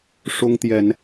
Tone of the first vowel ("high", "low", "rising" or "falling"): high